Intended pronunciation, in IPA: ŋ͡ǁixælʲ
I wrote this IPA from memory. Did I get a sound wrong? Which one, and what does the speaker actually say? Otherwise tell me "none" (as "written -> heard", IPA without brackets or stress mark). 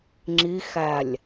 none